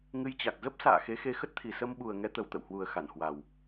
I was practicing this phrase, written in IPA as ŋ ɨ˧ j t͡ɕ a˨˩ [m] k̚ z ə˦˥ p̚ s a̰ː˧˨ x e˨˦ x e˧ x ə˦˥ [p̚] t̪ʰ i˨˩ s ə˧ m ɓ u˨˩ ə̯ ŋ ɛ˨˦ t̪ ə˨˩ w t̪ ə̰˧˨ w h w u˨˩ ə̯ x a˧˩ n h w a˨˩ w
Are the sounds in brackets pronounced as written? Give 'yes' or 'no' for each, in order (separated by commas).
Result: no, no